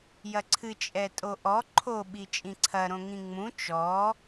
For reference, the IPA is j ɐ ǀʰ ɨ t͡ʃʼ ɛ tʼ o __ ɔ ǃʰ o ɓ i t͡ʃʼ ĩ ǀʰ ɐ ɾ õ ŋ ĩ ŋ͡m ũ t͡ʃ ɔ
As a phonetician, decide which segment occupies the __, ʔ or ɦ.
ʔ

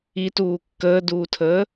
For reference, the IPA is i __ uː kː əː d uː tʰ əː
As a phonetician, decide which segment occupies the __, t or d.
t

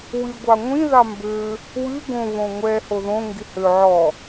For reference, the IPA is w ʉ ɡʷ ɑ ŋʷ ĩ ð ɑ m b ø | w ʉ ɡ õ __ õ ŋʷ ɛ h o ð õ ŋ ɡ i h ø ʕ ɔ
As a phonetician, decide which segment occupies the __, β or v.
β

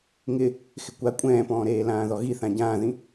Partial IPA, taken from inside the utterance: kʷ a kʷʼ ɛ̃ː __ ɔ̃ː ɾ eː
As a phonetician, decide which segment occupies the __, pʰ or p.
p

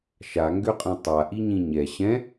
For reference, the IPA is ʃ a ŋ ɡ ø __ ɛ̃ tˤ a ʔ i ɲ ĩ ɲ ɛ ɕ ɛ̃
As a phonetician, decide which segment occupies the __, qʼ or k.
qʼ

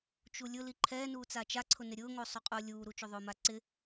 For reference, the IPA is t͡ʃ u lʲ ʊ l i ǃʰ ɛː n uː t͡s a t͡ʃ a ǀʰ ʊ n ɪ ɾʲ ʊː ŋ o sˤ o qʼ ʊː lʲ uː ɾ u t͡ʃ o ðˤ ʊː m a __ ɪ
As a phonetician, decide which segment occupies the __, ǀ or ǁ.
ǀ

